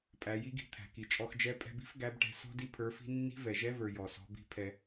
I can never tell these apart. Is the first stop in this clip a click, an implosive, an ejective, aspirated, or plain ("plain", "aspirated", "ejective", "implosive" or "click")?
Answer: ejective